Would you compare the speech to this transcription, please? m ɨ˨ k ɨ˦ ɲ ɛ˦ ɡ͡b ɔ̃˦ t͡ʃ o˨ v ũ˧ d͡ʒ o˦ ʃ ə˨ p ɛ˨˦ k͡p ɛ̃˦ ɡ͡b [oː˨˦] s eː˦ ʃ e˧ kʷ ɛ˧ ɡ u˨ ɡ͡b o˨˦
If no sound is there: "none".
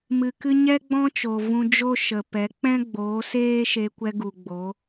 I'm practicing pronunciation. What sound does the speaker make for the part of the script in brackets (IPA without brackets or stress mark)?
oː˨˦